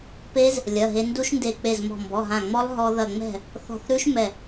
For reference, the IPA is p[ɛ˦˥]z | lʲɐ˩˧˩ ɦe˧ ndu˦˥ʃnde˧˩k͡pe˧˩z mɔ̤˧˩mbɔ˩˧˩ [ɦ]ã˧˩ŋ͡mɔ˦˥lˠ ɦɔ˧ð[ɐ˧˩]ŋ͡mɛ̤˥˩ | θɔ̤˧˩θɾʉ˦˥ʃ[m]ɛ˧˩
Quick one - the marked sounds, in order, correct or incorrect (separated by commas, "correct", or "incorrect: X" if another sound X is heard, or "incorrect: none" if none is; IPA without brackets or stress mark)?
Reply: incorrect: e˦˥, correct, correct, correct